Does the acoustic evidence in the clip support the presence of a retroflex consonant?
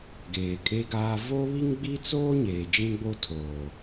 no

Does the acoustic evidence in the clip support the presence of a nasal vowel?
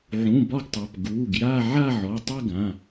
yes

